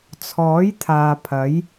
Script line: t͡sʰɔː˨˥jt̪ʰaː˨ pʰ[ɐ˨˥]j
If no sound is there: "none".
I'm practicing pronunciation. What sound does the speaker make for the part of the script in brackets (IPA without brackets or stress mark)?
ɐ˨˥